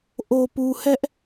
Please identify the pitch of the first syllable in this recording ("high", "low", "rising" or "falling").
low